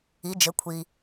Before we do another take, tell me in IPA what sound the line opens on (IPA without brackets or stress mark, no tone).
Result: i